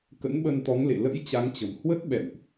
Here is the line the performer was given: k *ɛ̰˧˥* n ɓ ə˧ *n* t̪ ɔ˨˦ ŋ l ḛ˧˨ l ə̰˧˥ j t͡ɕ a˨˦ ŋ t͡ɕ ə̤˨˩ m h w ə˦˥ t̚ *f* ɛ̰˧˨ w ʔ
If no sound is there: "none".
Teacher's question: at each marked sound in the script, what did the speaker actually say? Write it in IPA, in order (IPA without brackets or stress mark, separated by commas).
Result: ə̰˧˥, n, ɓ